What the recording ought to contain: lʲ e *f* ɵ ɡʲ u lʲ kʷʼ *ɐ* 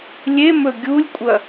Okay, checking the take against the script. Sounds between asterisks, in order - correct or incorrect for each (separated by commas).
incorrect, correct